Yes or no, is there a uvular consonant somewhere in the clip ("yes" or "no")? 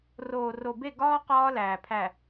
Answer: yes